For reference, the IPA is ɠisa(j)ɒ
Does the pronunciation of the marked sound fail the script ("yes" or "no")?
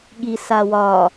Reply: yes